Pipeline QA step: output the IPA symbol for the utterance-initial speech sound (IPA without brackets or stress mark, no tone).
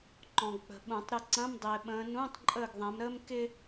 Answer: ǃ